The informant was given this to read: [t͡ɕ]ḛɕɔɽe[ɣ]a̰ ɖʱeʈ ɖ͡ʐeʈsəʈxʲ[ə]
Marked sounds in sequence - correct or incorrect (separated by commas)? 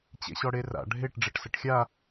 correct, incorrect, incorrect